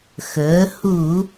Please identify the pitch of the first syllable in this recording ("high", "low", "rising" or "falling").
rising